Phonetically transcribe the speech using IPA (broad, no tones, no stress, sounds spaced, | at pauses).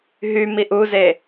ɦ y m i ʔ u z e